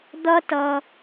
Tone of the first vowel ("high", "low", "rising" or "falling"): high